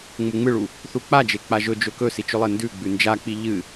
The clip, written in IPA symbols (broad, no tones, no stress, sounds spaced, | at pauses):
ŋ͡m u ŋ͡m ɨ ɭ u | θ u k͡p a d͡ʒ e k͡p a ʒ ɵ d͡ʒ ɵ k ɵ s i t͡ʃ ɵ lˠ e n d ʉ ɡ͡b ʉ n d͡ʒ a k͡p i ʎ ɨ